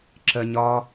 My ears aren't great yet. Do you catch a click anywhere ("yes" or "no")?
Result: yes